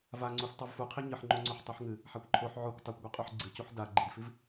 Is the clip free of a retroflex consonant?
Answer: yes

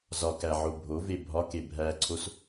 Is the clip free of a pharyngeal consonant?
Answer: no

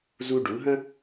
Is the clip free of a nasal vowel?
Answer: no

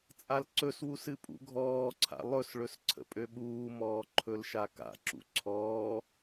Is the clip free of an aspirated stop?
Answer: no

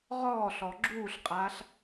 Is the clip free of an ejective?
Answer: no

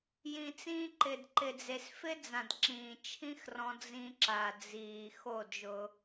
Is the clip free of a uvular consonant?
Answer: yes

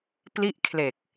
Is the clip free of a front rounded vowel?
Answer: yes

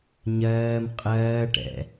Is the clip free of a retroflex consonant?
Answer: no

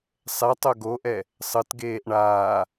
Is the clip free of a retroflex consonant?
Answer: no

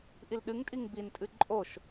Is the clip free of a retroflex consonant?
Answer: yes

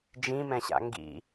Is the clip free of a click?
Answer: yes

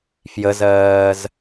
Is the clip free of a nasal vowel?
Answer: yes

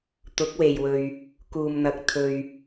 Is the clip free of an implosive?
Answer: yes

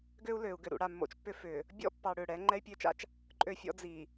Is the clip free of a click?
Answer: no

